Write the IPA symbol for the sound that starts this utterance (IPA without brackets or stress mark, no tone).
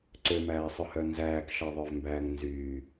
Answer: ǀ